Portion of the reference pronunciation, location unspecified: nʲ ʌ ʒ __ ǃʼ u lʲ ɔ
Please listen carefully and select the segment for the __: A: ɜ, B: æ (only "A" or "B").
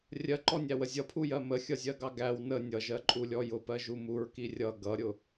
A